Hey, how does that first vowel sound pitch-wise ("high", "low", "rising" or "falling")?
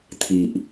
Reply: low